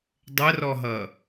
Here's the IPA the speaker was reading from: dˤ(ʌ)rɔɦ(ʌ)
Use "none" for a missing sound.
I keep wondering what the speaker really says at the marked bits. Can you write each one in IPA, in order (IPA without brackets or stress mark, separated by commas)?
ə, ʌ